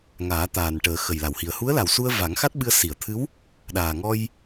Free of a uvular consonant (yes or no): yes